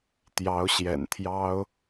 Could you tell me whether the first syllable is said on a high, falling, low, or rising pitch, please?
rising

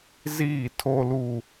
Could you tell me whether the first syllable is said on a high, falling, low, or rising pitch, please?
falling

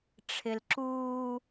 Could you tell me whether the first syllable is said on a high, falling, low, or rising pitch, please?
low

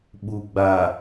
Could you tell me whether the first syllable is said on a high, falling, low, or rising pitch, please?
low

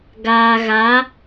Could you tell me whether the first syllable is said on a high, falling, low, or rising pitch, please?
low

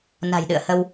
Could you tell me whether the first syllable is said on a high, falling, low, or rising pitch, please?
low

